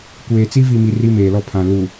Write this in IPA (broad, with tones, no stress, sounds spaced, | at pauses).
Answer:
kʷ eː˨ t͡s i˦ v i˨ m i˨ r i˦ m eː˨ l ɔ˦ pʰ ã˨ l u˨